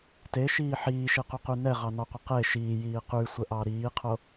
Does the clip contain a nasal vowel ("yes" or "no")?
no